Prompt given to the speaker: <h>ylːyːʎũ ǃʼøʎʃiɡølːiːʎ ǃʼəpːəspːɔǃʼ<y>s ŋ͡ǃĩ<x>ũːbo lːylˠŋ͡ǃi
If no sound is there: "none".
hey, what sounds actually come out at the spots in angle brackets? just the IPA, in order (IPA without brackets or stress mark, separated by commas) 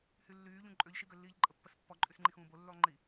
h, y, x